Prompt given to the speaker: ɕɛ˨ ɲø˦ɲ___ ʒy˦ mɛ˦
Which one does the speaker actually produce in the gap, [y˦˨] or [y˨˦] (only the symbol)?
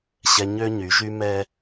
y˨˦